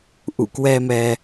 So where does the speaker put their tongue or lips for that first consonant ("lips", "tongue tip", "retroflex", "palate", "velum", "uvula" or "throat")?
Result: throat